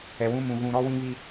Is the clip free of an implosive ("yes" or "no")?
yes